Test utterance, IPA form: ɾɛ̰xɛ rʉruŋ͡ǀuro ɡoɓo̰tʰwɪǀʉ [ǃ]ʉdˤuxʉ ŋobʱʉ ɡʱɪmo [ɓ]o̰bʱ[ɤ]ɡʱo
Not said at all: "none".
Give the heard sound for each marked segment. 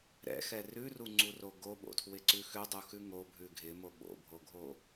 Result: x, ɓ, o

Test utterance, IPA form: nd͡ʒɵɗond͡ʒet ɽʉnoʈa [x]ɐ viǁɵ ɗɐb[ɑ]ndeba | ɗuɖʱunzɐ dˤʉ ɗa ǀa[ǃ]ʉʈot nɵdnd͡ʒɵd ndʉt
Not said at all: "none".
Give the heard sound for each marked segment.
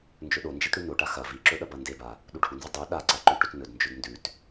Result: x, ɐ, ǃ

